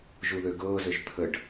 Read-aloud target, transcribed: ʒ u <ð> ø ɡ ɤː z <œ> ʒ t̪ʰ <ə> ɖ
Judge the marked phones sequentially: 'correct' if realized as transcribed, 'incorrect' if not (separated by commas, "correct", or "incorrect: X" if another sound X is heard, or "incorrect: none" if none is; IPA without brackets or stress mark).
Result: correct, incorrect: ø, correct